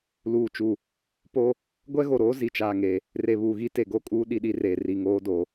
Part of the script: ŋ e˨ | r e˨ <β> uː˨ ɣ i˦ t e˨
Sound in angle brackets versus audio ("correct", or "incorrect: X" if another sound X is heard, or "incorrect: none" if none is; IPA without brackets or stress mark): correct